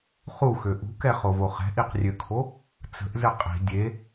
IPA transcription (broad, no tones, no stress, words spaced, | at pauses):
χuxø ʔṳkɛχovo χɛ̤ʔiqrʲøkʰo | t͡sə̤ʔzɘ qʼi̤ dʲe